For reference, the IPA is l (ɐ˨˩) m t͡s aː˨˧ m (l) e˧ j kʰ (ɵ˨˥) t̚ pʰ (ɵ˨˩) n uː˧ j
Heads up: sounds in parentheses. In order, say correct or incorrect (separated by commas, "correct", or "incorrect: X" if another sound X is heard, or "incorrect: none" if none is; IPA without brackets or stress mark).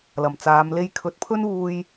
correct, correct, correct, incorrect: ɵ˥